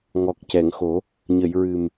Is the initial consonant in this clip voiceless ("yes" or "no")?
no